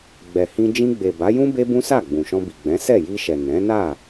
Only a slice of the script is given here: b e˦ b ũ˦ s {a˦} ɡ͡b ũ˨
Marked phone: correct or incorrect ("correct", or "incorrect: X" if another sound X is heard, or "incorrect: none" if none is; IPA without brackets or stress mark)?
incorrect: a˦˨